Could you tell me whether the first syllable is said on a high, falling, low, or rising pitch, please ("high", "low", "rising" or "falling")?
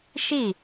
falling